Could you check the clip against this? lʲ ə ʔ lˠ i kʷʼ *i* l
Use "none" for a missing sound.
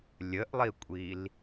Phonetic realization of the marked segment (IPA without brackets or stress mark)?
i